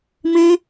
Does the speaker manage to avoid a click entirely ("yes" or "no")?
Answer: yes